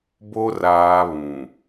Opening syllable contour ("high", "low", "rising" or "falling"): high